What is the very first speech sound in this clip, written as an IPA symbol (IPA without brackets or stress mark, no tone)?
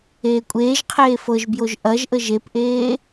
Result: eː